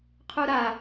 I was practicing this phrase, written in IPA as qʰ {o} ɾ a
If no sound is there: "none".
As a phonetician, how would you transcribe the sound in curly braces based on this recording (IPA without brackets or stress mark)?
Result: u